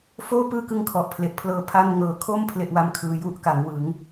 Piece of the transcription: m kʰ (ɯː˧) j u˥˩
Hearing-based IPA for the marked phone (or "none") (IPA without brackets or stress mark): ɯː˧